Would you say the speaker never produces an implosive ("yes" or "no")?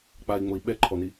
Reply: no